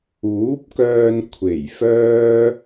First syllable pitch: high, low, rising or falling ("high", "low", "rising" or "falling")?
rising